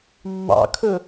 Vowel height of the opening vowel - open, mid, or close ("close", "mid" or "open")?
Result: open